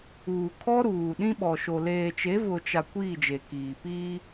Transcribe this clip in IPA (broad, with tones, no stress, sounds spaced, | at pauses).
uː˨ kʰ ɔ˦ ɾ uː˨ ɗ ĩ˦ ɓ ɔ˨ ʃ o˨ l eː˨ t͡ʃ e˨˦ v ʊ˨ t͡ʃ a˨ kʷ iː˦˨ d͡ʒ e˨ k iː˨ p iː˦